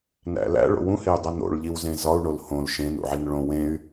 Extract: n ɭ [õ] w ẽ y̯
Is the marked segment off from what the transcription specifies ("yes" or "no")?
no